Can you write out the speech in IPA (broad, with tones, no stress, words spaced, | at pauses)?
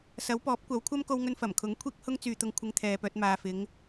sɐ˨˥wpɔː˨˥p̚kʷɐ˨˥wkʷʰɐ˥m ko˧wŋɵ˧nfɐ˨˩mkʰʊ˨˥ŋ kʷʰiː˥k̚hʊ˥ŋ t͡syː˨t̪ʊ˧ŋ kʷʰɪ˧ŋt̪ʰɛː˨pœː˧t̚ maː˨fɪ˨˧ŋ